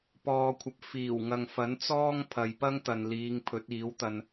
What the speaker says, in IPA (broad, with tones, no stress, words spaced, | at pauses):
pɔː˨kʷʰɐ˨p̚ fiː˨˩w ŋɐ˨ŋ fɐ˨˥nt͡sɔː˥ŋ pʰɐ˨jpɐ˥ŋt̪ɐ˨nliː˨˧ŋ pʰɵ˨˥t̚iː˨˥wt̪ɐ˧n